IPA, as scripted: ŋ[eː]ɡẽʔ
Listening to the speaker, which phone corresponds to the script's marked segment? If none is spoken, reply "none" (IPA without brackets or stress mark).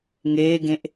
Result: eː